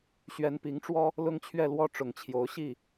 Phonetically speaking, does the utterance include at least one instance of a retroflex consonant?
yes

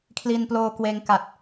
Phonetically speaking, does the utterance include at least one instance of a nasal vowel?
no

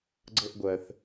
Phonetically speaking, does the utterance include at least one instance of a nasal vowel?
no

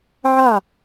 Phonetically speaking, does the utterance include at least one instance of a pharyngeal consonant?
yes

